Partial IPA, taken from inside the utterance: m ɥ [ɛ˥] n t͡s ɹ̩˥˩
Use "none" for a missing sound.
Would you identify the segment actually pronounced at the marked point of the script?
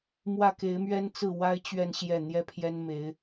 ɛ˥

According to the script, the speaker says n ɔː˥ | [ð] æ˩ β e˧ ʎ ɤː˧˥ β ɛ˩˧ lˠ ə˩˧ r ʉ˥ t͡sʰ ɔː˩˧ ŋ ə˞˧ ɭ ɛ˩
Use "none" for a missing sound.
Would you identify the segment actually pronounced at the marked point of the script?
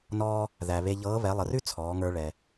ð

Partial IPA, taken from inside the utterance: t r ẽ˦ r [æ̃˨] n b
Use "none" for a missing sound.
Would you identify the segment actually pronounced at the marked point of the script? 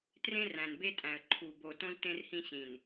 æ̃˨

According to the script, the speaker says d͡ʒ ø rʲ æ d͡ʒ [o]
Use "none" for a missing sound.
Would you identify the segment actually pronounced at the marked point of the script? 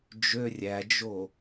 o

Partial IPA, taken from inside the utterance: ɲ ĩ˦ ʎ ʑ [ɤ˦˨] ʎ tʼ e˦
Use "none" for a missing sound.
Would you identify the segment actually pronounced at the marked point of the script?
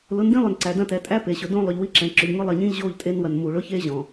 o˦˨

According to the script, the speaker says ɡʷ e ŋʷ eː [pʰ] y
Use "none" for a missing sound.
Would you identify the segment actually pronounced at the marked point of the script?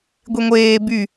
b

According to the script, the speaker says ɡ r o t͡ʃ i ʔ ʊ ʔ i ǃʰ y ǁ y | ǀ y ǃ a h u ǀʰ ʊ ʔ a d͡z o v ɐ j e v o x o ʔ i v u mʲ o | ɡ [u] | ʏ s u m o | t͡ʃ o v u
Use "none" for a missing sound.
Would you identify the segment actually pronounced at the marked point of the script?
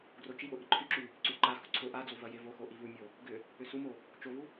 ʏ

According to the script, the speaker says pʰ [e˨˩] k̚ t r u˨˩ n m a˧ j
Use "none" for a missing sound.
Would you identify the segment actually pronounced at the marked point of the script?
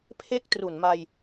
e˥˩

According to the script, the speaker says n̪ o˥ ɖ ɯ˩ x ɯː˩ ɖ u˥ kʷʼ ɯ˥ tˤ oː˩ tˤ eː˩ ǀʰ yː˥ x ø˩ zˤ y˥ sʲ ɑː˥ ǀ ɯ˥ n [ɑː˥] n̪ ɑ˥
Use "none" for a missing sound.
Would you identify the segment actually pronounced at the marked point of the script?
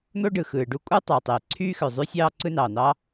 ɑː˩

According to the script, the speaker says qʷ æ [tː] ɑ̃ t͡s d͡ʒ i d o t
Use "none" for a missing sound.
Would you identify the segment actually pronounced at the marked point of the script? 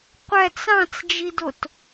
t͡s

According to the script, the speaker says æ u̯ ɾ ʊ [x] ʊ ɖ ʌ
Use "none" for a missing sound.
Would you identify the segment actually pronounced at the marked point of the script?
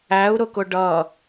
k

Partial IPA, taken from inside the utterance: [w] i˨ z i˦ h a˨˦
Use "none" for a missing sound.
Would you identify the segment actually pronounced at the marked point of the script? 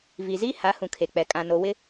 v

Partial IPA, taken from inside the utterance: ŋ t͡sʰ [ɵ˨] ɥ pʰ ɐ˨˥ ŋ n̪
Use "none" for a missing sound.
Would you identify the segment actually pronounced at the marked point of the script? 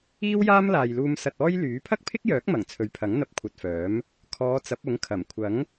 ɵ˨˥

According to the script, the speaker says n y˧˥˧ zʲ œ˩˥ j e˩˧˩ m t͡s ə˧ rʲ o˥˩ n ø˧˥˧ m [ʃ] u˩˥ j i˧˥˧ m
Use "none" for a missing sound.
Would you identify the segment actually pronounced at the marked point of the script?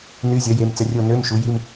ʃ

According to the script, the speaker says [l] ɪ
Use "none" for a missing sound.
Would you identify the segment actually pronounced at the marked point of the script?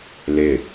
l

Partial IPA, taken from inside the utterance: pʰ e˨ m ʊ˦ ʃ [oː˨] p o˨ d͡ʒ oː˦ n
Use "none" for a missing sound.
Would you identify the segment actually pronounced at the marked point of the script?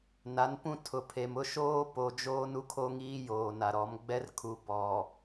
oː˦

